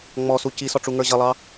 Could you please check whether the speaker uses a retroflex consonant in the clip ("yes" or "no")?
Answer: yes